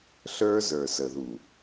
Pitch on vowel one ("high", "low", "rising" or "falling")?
high